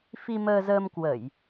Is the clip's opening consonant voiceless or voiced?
voiceless